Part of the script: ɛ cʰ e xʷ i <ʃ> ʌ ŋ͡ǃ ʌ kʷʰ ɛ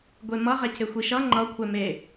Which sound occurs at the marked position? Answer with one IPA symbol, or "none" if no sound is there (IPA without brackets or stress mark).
ʃ